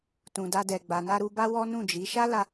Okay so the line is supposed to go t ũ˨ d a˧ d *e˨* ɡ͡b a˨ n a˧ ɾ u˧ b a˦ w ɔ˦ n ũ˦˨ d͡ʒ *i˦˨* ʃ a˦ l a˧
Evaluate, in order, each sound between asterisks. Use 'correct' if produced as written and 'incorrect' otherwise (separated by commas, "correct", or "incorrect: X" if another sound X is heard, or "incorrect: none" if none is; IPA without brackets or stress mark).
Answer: incorrect: ɛ˨, incorrect: i˨˦